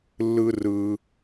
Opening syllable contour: high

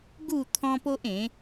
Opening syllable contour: falling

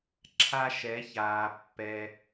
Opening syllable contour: high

